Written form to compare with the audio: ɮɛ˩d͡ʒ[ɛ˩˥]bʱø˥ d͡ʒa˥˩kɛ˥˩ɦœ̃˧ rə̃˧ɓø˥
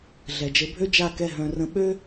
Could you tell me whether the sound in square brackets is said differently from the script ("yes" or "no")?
yes